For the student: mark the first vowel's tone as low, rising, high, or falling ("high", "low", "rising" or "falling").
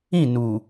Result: falling